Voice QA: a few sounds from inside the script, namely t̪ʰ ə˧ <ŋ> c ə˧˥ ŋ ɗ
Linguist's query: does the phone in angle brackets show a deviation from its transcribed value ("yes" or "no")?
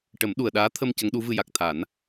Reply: yes